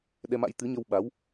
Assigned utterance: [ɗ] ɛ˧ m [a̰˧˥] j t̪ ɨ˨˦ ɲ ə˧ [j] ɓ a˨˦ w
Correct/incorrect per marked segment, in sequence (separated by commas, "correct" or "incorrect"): correct, correct, incorrect